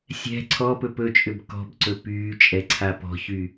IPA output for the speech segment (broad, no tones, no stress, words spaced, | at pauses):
sʲɛ̤ ǀʰɔpɵ pɵt͡ʃʼʏb kɔ̤bǀɵ pyːt͡ʃʼɛ ǀʰapɔ̤çy